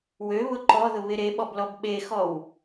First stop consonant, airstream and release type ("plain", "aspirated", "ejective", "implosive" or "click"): click